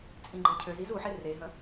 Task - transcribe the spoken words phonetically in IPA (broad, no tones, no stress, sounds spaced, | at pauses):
t͡sʼ ĩ ɡ͡ǃ e cʰ ø z i z u ħ e r e ɦ ə̃